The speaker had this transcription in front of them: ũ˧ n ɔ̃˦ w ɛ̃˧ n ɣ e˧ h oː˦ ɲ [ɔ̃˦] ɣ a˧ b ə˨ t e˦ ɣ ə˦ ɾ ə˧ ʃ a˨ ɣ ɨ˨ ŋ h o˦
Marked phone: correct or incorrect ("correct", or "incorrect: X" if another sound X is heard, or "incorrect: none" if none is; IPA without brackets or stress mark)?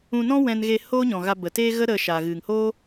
incorrect: ɔ̃˨